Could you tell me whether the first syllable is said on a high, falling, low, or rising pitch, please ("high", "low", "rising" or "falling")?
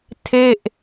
falling